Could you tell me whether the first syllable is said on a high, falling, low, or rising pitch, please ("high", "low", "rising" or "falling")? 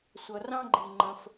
low